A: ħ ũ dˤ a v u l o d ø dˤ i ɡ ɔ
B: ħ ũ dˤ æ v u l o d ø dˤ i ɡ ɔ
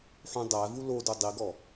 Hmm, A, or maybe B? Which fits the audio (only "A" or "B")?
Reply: B